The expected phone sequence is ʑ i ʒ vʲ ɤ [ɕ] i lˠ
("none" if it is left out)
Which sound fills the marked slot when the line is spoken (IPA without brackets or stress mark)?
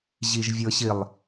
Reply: ɕ